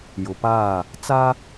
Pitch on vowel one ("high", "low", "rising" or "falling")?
low